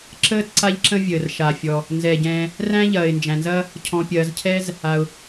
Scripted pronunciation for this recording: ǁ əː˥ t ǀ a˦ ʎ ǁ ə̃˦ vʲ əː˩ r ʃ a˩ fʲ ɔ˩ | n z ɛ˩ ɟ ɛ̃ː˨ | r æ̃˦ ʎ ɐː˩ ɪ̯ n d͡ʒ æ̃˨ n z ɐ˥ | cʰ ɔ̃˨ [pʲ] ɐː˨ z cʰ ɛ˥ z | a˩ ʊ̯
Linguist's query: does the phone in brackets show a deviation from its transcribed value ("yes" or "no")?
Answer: no